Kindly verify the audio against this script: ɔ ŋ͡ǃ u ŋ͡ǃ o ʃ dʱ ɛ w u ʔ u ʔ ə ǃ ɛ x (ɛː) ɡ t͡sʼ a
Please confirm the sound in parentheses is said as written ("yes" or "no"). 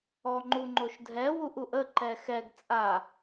no